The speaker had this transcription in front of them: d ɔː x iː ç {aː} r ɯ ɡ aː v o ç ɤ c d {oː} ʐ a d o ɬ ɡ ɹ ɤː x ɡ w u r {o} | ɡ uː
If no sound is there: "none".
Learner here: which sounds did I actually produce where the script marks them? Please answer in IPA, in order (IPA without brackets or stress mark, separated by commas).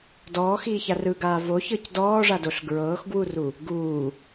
a, ɔː, u